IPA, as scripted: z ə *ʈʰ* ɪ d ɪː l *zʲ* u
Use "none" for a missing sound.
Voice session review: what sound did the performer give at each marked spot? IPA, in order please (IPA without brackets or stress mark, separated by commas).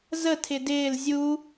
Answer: tʰ, zʲ